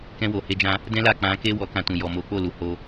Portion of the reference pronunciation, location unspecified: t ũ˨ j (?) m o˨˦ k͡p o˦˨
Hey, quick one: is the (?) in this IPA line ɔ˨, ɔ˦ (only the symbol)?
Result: ɔ˨